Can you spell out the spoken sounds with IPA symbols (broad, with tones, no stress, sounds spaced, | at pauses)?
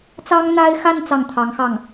t͡s ɑ˥ ŋ n̪ a˥ ɪ̯ x a˥˧ n t͡s ɑ˥˩ ŋ t̪ʰ ɑ˧˥ ŋ x ɑ˥˩ ŋ